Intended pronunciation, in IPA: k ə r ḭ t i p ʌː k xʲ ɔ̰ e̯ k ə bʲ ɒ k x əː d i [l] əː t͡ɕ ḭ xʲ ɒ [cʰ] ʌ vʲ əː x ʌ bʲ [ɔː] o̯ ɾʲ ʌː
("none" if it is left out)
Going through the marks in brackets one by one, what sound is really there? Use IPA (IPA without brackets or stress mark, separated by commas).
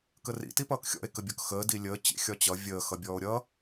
lʲ, t͡ɕ, ɔː